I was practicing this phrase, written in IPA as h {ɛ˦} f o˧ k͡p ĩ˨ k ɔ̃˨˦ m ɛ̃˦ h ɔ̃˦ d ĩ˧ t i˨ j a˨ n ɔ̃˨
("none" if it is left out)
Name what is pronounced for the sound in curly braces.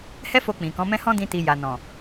ɛ˦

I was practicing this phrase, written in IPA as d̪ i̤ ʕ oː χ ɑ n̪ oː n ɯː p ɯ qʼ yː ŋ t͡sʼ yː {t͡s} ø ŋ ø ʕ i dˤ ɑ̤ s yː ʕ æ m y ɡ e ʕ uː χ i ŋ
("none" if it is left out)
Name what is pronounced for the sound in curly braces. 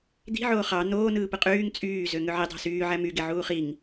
z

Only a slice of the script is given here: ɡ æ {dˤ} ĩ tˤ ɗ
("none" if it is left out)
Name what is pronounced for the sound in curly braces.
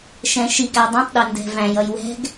dˤ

